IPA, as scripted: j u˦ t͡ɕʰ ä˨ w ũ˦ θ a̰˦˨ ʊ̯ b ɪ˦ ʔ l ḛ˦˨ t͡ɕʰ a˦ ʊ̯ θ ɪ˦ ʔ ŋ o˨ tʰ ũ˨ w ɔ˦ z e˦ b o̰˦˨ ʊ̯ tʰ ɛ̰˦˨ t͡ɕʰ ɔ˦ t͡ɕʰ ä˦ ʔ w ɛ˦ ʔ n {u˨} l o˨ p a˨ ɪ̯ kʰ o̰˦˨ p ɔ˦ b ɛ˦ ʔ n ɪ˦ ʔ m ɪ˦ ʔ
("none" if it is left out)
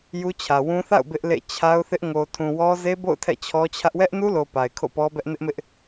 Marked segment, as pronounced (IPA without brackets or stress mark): u˦